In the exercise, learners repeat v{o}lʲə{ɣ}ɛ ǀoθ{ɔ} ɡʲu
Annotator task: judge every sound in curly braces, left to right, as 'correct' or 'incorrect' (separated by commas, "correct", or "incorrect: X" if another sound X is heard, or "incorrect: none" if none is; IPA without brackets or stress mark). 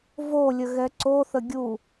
correct, correct, incorrect: ə